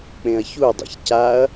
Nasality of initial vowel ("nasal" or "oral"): nasal